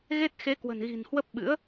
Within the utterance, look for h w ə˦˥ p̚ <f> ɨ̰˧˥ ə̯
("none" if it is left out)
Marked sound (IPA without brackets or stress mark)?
ɓ